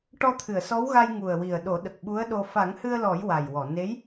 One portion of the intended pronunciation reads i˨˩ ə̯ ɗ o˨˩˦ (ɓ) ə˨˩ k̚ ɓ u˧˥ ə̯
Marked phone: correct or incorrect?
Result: incorrect: ɗ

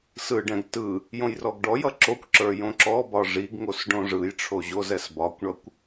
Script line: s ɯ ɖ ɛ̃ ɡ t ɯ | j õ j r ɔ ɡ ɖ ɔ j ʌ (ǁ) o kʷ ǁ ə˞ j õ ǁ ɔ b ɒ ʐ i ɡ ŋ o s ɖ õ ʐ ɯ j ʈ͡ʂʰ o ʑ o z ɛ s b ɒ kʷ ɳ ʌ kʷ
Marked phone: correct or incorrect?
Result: correct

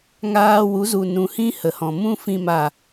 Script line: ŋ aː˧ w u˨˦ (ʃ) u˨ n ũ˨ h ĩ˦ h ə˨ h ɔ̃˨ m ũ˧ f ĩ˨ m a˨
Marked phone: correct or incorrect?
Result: incorrect: z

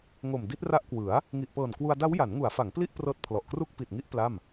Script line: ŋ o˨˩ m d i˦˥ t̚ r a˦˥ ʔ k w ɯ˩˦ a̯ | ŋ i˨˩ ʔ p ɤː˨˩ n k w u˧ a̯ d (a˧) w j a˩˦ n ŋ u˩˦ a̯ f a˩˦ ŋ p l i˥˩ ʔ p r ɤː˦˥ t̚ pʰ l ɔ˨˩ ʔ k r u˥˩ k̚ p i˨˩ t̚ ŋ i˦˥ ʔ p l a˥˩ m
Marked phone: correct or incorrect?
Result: incorrect: a˦˥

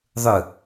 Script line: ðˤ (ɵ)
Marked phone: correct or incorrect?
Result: correct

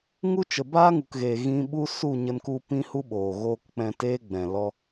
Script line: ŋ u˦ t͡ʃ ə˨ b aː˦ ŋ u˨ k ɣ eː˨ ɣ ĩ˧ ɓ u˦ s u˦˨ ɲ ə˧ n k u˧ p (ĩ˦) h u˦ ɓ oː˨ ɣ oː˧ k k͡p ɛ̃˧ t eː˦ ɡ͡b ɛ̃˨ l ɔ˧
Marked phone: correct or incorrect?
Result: correct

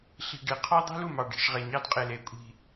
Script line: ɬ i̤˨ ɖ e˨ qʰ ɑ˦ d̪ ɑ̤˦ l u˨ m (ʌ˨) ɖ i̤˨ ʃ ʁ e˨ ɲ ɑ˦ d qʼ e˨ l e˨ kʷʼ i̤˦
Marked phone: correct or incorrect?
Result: incorrect: ɑ˨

